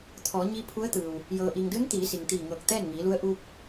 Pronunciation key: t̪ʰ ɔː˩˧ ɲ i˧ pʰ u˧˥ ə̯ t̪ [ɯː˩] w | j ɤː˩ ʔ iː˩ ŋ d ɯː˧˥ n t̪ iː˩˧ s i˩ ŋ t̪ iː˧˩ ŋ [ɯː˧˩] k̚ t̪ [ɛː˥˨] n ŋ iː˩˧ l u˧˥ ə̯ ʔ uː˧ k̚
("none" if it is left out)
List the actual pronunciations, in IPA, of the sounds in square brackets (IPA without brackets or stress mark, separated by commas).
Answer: ɯː˩, ɤː˧˩, ɛː˥˨